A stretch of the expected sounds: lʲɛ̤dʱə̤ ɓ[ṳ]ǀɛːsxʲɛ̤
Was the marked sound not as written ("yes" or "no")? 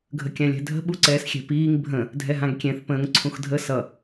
yes